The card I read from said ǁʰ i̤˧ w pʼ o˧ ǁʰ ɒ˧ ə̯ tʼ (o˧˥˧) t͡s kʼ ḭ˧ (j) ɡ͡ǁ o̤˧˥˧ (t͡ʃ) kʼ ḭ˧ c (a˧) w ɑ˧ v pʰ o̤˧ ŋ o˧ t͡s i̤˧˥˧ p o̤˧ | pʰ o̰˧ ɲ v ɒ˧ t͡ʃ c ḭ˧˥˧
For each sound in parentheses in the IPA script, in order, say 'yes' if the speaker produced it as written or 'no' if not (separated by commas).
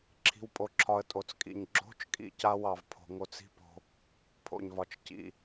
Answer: no, no, yes, yes